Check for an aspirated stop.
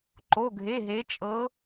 absent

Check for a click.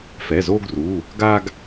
absent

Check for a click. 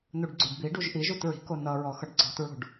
present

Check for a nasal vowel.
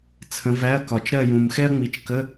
present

